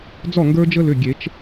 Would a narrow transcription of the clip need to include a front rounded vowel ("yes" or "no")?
yes